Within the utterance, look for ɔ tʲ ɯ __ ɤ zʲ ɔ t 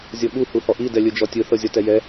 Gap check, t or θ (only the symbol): θ